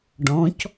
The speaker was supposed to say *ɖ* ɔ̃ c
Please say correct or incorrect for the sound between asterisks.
correct